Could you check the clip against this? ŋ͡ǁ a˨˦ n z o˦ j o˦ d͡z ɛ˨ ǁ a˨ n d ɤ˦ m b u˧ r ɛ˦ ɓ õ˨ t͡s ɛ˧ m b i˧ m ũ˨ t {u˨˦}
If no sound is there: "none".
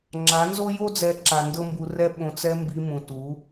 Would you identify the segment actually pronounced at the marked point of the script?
u˨˦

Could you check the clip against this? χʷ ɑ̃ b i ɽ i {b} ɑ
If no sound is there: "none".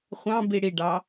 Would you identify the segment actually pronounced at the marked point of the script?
ɖ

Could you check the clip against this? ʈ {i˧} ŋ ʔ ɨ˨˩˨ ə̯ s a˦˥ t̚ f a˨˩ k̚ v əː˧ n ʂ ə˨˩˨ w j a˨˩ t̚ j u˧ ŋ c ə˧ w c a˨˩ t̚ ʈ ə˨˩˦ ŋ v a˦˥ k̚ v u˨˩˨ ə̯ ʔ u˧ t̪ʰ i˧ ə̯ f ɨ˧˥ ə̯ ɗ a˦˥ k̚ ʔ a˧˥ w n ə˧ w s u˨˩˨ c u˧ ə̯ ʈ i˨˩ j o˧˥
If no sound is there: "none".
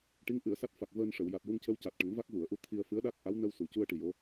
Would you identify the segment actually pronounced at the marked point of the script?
i˧˥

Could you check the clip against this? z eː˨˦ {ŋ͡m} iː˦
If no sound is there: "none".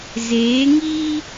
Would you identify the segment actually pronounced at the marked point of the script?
ŋ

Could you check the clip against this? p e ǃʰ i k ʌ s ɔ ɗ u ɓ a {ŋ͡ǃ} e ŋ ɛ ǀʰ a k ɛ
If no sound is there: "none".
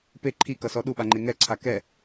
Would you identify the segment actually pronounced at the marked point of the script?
ŋ͡ǃ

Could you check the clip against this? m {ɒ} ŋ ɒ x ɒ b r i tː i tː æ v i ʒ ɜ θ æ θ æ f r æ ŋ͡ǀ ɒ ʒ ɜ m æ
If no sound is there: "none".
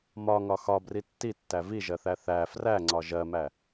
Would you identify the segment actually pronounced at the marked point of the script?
ɒ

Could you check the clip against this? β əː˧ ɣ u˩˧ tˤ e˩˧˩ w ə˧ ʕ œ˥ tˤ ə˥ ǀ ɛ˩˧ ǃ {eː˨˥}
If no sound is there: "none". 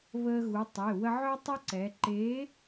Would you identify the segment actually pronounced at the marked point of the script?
eː˨˥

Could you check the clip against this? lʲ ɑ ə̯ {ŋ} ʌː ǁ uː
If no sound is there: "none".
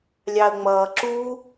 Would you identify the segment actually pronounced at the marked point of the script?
ŋ͡m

